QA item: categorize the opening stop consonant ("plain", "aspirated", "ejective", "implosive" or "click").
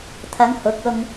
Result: aspirated